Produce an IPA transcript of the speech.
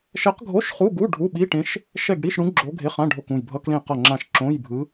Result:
ʃɛ˧˥qɡʱo˧˥˧ʃ χu˧˥˧ɡu˧˥˧ ɖʱu˧˥˧ɓi˧˥˧ʈẽ˧˥ʃ | ʃɛ˦˨ɡɽi˧˥˧ʃɽũ˧˥ ɡ͡ǁo˧˥ɡʱe˧˥˧χã˧˥˧ ɖʱo˦˨kũ˦˨j bʱʌ˧˥˧klẽ˦˨qʌ˦˨ŋ͡ǁã˦˨ʃ ǁõ˧˥˧jbʱɯ˧˥

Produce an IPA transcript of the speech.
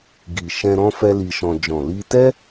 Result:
ɡi˨ʃɛ̃˧ ɾɔ̃˦fɛ˦li˧ʃɔ̃˧ d͡ʒɔ̃˨li˧tɛ˦

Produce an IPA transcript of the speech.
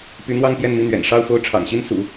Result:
py˧˥n̪wɑ˥˧ŋ pjɛ˥˧nmi˥˩n̪ɥɛ̰˨˩n ʂɑ˥˧ʊ̯fo˥˩ʊ̯ ʈ͡ʂʰɑ̰˨˩ŋɕi˥n sṵ˨˩˦

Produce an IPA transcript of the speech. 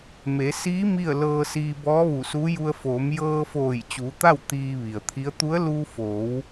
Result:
me˩˧siː˧˥ mi˥˨ə̯lɤː˧siː˧ bɔː˧˥ʋu˧˩suː˧˥ju˧ə̯ foː˩˧mjɤː˧foː˧˩j t͡ɕuː˩˧t̪a˥˨w t̪iː˧ʋi˩ə̯t̪ʰi˧˥ə̯ t̪u˧˥ə̯ luː˧foː˩˧w

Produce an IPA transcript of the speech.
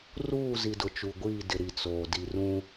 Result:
ruː˦˨zi˨ dʊ˨t͡ʃu˨ɡʷiː˦˨dɪ˨ ɾi˨t͡soː˨ di˨rũ˦

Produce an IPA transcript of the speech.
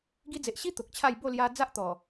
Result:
ɡi˧d͡ze˨ʔɕi˦ t̪o˨k̚t͡ɕʰa˥˧j bo˥˧lja˧ d͡za˦ʔ t̪ɔ˨˩

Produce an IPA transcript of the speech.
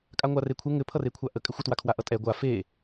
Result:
kʼaŋʷarekʷʰɛ ŋɘpʰʌrekʷʰa ʔə kʼɘxʷətwakʰwa ʔʌtʼɛ ɡʷa fe

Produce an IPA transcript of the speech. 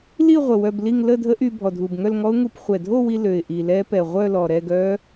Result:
li˥˧ʁʷə˨˩ wœ˧bli˥˧ŋ lə˥˧dʱə˦˥ʔy˧ bʱɔ˨˩dʱu˨˩bŋœ˥˧lŋɔ˦˥ʊ̯ ŋu˧p χʷɛ˨˩dʱo˥˧wi˧ lø˨˩ɪ̯ʔi˨˩lɛ˦˥ pɛ˨˩ʁʷœ˥˧lɔ˨˩ ɾɛ˥˧ɡœ˦˥

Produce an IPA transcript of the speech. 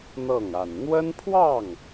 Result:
n̪ɤ˥˩ŋ a˨˩nn̪wə˥npʰwɑ˥˩ŋ

